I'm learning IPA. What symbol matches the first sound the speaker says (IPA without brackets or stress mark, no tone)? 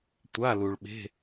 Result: tʷ